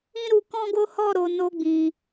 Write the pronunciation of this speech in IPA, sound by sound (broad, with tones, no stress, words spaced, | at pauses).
ĩ˦ɾu˧kɔ̃˦ɡo˦ hɔ˦˨ɾo˨ no˧ɡ͡bĩ˨